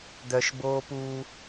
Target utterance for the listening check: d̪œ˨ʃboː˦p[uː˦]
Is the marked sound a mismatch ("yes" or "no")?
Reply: no